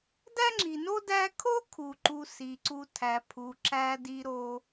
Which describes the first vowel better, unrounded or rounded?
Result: unrounded